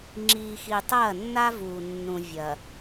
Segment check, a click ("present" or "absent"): present